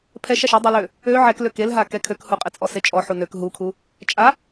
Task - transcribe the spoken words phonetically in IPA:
pʰ ɛ ʃ a ʃ e dˤ i l ø | ø ʕ ɛ k l ø k e l ɦ a k ɛ kʰ ø k h u qʼ e t͡sʼ ɔ s e t͡ʃʼ ɔ ħ u n ø k ɦ u kʰ u | t͡ʃʼ a

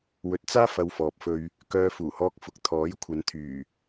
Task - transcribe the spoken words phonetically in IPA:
w ɵ˨˥ t̚ t͡s aː˥ f ɐ˧ w f ɔː˨ p̚ f ɵ˧ ɥ | k œː˧ f uː˨˩ h ɔː˧ k̚ f ʊ˨ k̚ t̪ʰ ɔː˨˥ j kʷʰ ɐ˨˧ n t̪ʰ yː˨˩

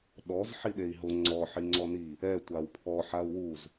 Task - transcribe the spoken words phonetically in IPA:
ɗ ɔ z ħ i ɗ e i̯ ɦ ʊ ŋ͡ǀ ɔ ħ i ŋ͡ǀ ɔ n i | ɛ tʷ a w pʰ ɔ ħ a u̯ w u z

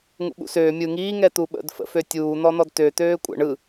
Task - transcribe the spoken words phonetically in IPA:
ŋ ṵ ɓ ṵ s øː mʲ ɯ ŋ iː ŋ ɛ t̪ u ɓ ə̰ d f ə̰ f ø tʲ uː n̪ ɔ n̪ ɔ d t ø t̪ øː kʷʼ ə̰ ɳ ɯ

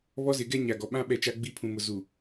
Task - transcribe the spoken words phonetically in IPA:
β ɔ˦ z ɪ˨˦ ɡ ɛ˦ ɲ a˨ ɡ ɔ˨ ɓ ã˦ ɓ ɛ˦˨ t͡ʃ a˦ ɡ͡b i˦ pʰ ũ˨ m ʊ˨ z u˨

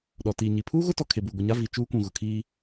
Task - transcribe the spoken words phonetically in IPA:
ɗ ɔ˨ t iː˨ ɲ i˨ pʰ uː˦ ɣ ʊ˦ t ɔ˨ kʰ e˨ b uː˨ ɡʷ i˨ ɲ a˦ v i˨ t͡ʃ uː˦ kʷ ũ˨ ɣ ʊ˨ kʰ iː˦

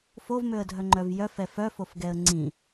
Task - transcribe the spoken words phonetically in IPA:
f o v m ø ə̯ dʱ œ ŋ͡ǃ œ v j œ f ɛ f œ f o f ɡ ɛ ə̯ ŋ͡ǀ ĩ

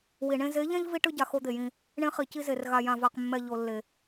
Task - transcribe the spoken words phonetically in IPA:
w i˨ ɳ ẽ˦ z e˨˦ ʎ ɛ̃˦ ʎ v i˦ ʈ ɯ˦ ɟ a˨ x o˦ d̪ e˨ j ĩ˦ | ɳ ẽ˦ χ i˨ c i˦ z e˨ r ɣ a˨ j ã˨ v a˨ q mː ɛ˨ ʎ o˨ lː e˨

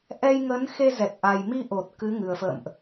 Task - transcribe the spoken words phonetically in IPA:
ʔ ɛ˧ j ŋ ə˨˦ n x e˧ z ɛ˨˩ t̚ ʔ a˨˩ j m i˧ ʔ o˨˩ t̚ k ɨ˨˦ ŋ ɨ˨˩ ə̯ f ə̰ː˧˨ m ʔ

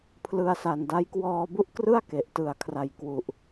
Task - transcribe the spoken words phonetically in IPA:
pʰ l ɯ˧ a̯ s a˨˩ n d a˦˥ j k w ɔː˧ b u˦˥ ʔ k r ɯ˥˩ a̯ k e˨˩ ʔ t ɯ˨˩ a̯ kʰ r a˨˩ j k w u˨˩ ʔ

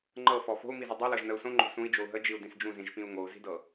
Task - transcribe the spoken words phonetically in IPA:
ŋ͡ǃ ɤ f ɔ f o̤ u̯ m i z ɯ dˤ i l ɤ ʒ n ə u̯ s õ ŋ͡ǃ o̤ s ũ i̯ d͡ʒ o u̯ ɦ ə d͡ʒ i u̯ d ĩ s d͡ʒ ũ z ĩ ʒ p ĩ u̯ ŋ o u̯ z i̤ d ɤ

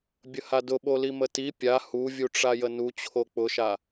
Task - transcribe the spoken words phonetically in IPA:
bʲ ə h a d ʊ ɓ o l i m ə t i pʲ a h u vʲ u ʈ͡ʂ a j ə n u t͡ɕʰ o k͡p ʊ ʃ a

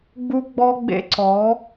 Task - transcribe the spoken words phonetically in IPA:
ɡ͡b u˦ ɡ͡b ɔ˦ ɡ͡b ḛ˦ ǀ ɔ˨˦

